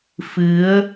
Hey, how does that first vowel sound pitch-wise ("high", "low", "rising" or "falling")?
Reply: rising